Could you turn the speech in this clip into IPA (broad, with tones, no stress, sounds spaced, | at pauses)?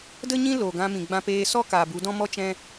d ə˦ ɲ ĩ˦ l o˨ ɡ ã˧ m ĩ˨ ɡ͡b ã˧ p eː˧ s ɔ˦ k aː˨ b u˨˦ d ɔ̃˦ m ɔ˦ t͡ʃ ɛ̃˦